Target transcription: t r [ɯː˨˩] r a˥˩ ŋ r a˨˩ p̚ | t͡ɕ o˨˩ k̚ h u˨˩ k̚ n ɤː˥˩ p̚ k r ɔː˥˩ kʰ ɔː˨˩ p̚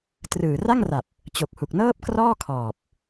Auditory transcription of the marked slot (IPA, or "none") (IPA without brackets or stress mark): ɯː˨˩